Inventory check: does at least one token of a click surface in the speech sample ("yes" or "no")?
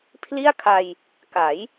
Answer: no